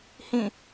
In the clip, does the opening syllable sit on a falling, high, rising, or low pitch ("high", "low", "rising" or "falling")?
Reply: falling